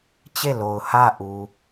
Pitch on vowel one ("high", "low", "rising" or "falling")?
falling